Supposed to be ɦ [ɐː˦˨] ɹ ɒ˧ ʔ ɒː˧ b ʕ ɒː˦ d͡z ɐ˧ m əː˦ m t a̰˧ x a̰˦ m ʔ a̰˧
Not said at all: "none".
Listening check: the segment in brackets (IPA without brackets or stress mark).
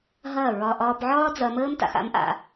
ɐː˦˨